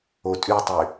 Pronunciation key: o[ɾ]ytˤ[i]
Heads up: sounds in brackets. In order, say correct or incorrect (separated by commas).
incorrect, incorrect